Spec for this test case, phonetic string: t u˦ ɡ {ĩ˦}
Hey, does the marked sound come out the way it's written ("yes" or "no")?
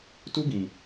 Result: no